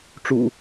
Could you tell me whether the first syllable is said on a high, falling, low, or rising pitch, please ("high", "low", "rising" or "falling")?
low